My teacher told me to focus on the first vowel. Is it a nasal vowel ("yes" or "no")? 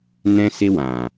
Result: yes